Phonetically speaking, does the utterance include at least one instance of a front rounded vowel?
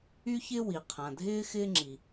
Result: yes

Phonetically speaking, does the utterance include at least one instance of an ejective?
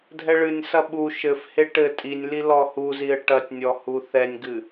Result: yes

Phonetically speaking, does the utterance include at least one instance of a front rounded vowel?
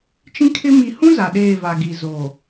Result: no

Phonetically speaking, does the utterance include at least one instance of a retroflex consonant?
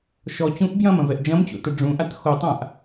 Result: yes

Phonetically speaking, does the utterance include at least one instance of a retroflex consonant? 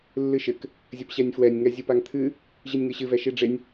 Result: yes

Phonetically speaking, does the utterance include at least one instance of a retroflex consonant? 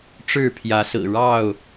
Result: yes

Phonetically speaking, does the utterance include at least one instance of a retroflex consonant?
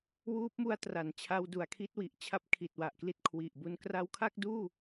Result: no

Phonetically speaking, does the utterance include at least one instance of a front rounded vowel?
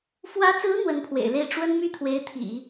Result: yes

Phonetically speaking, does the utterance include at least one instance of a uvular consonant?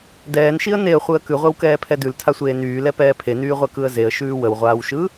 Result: yes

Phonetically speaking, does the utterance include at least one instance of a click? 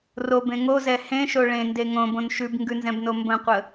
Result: no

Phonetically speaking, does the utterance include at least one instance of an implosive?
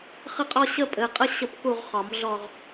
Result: no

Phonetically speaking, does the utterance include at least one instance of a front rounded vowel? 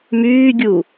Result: yes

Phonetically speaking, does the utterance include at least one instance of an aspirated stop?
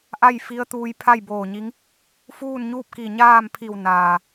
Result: yes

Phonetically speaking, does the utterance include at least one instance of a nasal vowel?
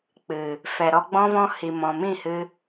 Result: yes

